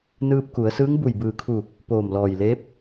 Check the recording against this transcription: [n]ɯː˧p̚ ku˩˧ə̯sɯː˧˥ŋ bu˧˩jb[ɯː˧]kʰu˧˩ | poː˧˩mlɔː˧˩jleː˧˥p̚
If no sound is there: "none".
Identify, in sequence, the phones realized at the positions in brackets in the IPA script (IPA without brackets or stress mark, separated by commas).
n, ɯː˧˩